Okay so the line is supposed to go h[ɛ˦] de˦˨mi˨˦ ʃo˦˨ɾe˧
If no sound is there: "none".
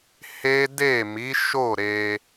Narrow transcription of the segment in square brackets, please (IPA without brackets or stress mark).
e˦